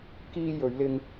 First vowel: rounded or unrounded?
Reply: unrounded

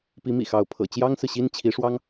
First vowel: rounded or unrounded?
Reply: unrounded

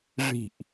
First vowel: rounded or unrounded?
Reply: unrounded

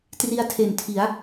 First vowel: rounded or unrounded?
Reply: unrounded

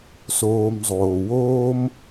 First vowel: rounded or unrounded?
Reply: rounded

